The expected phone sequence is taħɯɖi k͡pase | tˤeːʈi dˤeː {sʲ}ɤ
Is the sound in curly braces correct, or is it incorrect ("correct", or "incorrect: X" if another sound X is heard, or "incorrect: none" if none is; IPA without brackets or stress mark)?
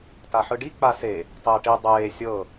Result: correct